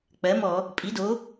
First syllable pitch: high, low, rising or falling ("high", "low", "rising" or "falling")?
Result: rising